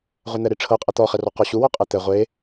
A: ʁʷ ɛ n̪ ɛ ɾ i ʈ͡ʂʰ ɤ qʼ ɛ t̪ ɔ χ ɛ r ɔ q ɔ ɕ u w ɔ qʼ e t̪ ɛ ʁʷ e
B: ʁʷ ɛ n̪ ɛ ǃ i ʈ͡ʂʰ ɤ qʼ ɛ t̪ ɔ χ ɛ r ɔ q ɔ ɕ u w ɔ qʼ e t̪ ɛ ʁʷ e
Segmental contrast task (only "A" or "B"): A